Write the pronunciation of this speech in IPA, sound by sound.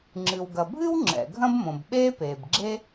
ŋ͡ǁɨ˩wɡɐ˩bʱɨ˥w ŋ͡ǁɛ̰˩ɡʱɐ̃˥bmõ˩bɓeː˥ peː˩bɡ͡ǁe˥

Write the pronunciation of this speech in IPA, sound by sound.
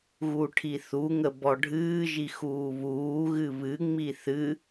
ɣuʈʰiθuŋə bɔɖʱɨːʒi xuːβuːɣɨ βɨŋ͡mi θɨ

